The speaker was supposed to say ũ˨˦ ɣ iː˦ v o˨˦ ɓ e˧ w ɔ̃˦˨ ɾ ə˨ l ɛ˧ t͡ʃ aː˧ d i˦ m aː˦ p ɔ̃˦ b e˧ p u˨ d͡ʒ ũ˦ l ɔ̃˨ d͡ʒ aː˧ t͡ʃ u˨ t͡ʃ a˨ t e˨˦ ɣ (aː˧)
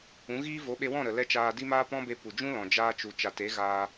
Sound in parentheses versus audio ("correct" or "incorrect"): correct